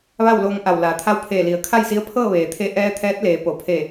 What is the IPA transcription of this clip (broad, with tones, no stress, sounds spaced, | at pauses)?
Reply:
ʋ a˥˨ w l oː˧ ŋ ʔ a˧˩ w l aː˩˧ t̪ʰ a˧˥ w pʰ eː˧˩ l i˩ ə̯ kʰ a˥˨ j s i˧˥ ə̯ pʰ ɤː˥˨ ʋ eː˩ t̪ʰ e˧ ʔ ɛː˧ t̪ʰ ɛː˧˥ t̚ l eː˩˧ p o˩ pʰ e˧˩